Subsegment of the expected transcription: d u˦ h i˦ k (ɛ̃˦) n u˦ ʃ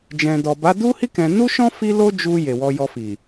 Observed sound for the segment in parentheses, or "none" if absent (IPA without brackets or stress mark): ɛ̃˧